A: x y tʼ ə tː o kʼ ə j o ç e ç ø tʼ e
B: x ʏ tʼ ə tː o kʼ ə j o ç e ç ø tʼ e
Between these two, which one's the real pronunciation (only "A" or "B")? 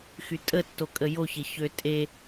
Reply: A